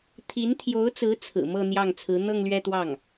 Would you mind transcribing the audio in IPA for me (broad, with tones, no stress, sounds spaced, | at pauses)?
t̪ʰ i˧˥ n t̪ʰ j o˧˥ ʊ̯ t͡s ɹ̩˧˥ t͡sʰ ɹ̩˨˩ m ɤ˥˧ n̪ j ɑ˥˩ ŋ t͡sʰ ɹ̩˧˥ n̪ ɤ˥˧ ŋ l ɥ ɛ˥˧ t̪ w ɑ˥˩ ŋ